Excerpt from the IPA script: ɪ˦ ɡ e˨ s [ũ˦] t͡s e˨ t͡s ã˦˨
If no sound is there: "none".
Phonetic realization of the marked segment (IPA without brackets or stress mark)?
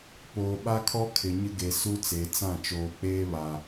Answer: u˦